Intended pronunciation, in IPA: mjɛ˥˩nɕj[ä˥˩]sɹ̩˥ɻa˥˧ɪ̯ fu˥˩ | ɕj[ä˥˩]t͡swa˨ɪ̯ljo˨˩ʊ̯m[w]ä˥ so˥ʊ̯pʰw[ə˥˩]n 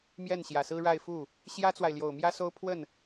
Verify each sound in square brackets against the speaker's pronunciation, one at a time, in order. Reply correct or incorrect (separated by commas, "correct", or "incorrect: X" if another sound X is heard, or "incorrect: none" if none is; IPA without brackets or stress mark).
incorrect: ä˨˩, incorrect: ä˥, incorrect: j, correct